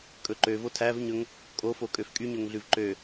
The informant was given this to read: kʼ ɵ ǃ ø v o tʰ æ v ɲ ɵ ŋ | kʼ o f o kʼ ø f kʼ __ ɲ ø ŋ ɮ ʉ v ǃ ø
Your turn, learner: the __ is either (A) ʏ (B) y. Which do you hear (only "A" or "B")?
B